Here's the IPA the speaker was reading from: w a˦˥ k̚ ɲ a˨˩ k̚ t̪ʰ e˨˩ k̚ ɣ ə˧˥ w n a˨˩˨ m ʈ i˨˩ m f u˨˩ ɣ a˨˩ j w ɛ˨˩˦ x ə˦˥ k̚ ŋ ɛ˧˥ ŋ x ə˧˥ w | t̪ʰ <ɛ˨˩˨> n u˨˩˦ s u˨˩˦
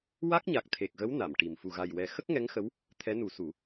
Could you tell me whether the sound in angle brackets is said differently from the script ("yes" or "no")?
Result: yes